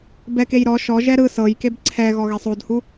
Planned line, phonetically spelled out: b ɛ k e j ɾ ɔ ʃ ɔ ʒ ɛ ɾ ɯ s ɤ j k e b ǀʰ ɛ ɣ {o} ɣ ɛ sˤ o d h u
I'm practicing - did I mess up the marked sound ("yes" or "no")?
yes